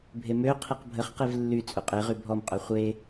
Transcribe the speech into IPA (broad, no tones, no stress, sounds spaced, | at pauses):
bʱ e m ø qʰ i q bʱ ə χ q i v lː y t͡sʼ u qʼ e ʁ y bʱ ɔ m qʼ œ χʷ e